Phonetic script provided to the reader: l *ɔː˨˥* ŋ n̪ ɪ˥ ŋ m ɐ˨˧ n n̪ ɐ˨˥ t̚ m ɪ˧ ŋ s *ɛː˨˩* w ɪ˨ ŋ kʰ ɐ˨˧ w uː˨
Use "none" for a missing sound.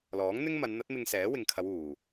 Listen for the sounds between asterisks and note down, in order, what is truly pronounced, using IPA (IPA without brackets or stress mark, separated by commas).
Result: ɔː˨˥, ɛː˨˥